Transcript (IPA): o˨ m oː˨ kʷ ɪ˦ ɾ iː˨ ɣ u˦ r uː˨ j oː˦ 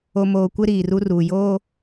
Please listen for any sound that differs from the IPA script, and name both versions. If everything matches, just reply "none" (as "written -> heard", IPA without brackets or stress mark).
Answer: ɣ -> r